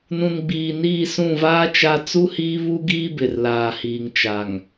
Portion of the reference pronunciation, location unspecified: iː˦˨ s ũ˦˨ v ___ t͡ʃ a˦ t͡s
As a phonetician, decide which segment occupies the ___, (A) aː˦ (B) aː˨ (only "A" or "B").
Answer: A